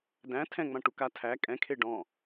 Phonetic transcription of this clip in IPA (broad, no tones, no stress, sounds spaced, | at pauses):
d æ̃ tʰ ɛ̃ ŋ͡m ã ʈ u k a tʰ æ kʼ ɛ̃ kʰ e ɖ ɔ̃